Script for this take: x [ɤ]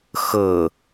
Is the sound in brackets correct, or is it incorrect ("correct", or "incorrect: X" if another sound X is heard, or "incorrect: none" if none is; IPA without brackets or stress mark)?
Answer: correct